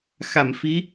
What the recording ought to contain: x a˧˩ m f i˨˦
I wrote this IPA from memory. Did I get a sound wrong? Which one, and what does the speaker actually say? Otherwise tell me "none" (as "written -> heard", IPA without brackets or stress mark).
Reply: none